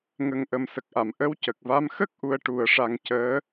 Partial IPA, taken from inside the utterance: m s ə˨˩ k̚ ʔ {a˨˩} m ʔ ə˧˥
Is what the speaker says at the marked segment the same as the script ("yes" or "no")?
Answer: no